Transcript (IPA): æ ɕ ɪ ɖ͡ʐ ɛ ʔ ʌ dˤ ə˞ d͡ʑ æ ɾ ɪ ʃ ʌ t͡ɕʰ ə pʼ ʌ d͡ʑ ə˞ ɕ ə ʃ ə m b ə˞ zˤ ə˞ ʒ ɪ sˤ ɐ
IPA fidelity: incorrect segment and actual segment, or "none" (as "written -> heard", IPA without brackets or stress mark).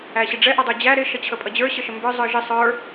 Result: ɐ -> ə˞